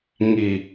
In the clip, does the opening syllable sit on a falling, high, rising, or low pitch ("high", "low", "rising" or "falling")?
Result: low